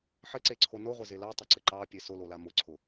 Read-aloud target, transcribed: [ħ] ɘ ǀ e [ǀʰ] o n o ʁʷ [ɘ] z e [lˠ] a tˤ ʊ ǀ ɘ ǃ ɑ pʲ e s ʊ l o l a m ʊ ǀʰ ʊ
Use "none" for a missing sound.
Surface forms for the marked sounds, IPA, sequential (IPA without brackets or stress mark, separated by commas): ħ, ǀʰ, ɘ, l